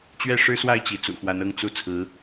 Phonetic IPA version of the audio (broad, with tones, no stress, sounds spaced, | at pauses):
t͡ɕ ɥ ɛ˥˩ ʂ ɻ̩˥ s w a˥˩ ɪ̯ t͡ɕ i˧˥ t͡s ṵ˨˩ x w a˧˥ n ɤ˥˧ ŋ t͡s u˥˩ t͡sʰ ɹ̩˧˥